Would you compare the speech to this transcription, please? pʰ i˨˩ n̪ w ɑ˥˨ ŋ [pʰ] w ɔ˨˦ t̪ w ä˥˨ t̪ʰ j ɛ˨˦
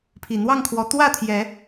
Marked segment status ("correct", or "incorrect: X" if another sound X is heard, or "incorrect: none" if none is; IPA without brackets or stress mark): incorrect: kʰ